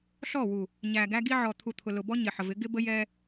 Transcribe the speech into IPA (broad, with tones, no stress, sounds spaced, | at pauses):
ɬ ɔ˦˨ w u˨ | ɲ æ˨ ɡ æ˦ ɡ i˦ ʕ ɔ˨ t̪ʰ u˨ t̪ʰ ʊ˨ l ʊ˨ b ɔ˦ ɲ ɪ˨ ħ ə˨ v ɪ˨˦ ɡ ɪ˦ b ə˦ j ɛ˦